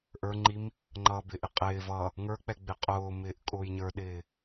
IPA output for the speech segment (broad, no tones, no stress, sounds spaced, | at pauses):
ʔ ə˞ ŋ͡ǃ i m | ŋ͡ǃ ʌː b ɪ ʔ ɪ qʼ ɪː v ʌ | ŋ ə˞ k͡p ɛ ɡ͡b ɪ qʼ ʊː m ɪː ʔ kʼ ʊː j ɲ ə˞ ɗ ɪː